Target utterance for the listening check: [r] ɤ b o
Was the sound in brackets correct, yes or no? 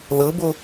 no